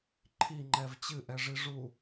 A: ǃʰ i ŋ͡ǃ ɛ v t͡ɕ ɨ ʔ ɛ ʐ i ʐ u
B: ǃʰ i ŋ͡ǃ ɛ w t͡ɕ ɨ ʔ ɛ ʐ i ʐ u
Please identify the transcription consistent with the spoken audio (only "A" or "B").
A